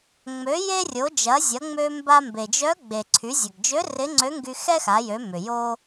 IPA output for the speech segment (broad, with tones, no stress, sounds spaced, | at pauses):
ŋ͡m ø˩˧ j e˧ rʲ o˩˧ d͡ʒ ɐ˩˧ zʲ ɐ˩˧ ŋ͡m ø˧ m b a˧ m b e˩ d͡ʒ œ˧˥ ɡ͡b e˩ ǀʰ y˩˧ zʲ ɐ˩ ɡ d͡ʒ ø˧˥ r ɪ˧˥ ŋ͡ǀ ø˧˥ ŋ ɡ y˧ x ɛ˥ x a˩˧ j ø˩˧ m ʏ˩ j o˥